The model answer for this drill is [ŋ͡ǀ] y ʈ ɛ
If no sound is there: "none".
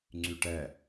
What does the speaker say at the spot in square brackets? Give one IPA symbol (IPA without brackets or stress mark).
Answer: ŋ͡ǀ